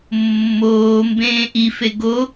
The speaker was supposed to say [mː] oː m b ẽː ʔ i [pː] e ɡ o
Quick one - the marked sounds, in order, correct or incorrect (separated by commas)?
correct, incorrect